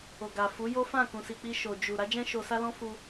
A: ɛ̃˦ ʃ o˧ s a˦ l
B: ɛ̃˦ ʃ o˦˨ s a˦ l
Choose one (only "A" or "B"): A